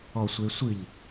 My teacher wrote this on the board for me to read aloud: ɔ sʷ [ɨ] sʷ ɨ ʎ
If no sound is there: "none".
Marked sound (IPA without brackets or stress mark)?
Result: e